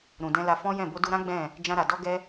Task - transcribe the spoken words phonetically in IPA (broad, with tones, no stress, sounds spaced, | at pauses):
ɾ ũ˨ d ɛ̃˧ l a˧ f ɔ̃˦ j ɛ̃˦˨ b o˧ d u˧ ɾ ã˦ ɡ͡b ɛ̃˦˨ | d͡ʒ ã˧ ɾ a˨ d ɔ˧ ɡ ɛ˧